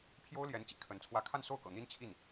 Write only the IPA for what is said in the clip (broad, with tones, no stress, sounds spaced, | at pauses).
pʰ j o˥ ʊ̯ l j ɛ˧˥ n t͡ɕ ḭ˨˩ kʰ ə˧˥ n t͡sʰ w ä˥˧ kʰ a˥˧ n s o˥˩ ʊ̯ k ɤ̰˨˩ n̪ i˥ n t͡ɕʰ i˥˩ n